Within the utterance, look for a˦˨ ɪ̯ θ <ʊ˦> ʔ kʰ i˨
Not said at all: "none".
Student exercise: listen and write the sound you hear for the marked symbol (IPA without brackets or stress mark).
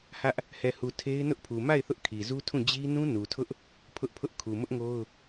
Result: ʊ˦